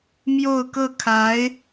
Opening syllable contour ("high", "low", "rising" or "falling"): falling